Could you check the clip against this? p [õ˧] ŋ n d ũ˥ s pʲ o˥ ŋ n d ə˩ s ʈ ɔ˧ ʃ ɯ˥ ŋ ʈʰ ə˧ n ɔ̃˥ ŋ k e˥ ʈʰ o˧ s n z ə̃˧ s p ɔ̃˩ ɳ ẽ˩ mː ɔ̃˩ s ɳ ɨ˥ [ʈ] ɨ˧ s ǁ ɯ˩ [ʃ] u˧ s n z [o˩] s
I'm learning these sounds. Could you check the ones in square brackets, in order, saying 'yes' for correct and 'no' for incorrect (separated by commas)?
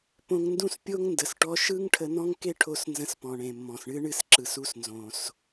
yes, no, no, no